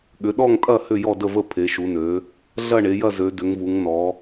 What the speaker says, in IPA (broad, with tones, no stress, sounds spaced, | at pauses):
ɠ ʏ˩˧ ɗ ɔ˦˨ ŋ tʼ ɐ˦˨ h ʏ˦˨ j ɔ˦˨ d ə˦˨ v ə˦˨ pʰ e˩˧ ʃ u˩˧ n ø˩˧ | ɮ ɐ˦˨ ɳ e˩˧ j ɐ˦˨ z ø˩˧ d ʏ˩˧ ŋ v u˩˧ ŋ n ɔ˩˧